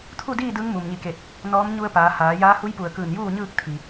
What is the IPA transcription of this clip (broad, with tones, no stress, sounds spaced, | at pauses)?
t̪ʰ u˥˨ d iː˥˨ d ɯː˧˥ ŋ m u˩ m ɲ i˧˩ k e˧˩ t̚ | n ɔː˧˥ m ɲ u˧ ə̯ p aː˩˧ h aː˩˧ j aː˧˥ h u˧˥ j p u˧˩ ə̯ k ɯː˧˩ n j uː˥˨ ɲ ɯː˥˨ k̚ t̪ʰ i˩